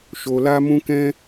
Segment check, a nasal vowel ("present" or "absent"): present